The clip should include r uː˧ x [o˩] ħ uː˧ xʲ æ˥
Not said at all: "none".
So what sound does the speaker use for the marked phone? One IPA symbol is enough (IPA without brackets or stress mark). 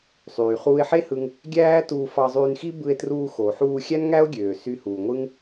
o˩